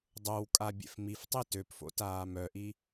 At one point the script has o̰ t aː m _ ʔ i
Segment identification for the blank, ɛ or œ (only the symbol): œ